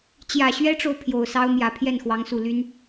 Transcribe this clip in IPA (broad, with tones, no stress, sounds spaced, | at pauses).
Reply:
t͡ɕ j ä˨˩ ɕ ɥ ɛ˥ ʈ͡ʂ o˨ ʊ̯ pʰ j o˨˩ ʊ̯ s ɑ˥ ʊ̯ m j ä˨˩ pʰ j ɛ˥˩ n x w ɑ˧˥ ŋ s u˨˩ l y˥ n